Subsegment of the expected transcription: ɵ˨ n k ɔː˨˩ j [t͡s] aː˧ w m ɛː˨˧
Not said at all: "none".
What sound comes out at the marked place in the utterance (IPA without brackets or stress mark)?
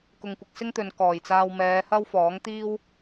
t͡s